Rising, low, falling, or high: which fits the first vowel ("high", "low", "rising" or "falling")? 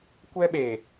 high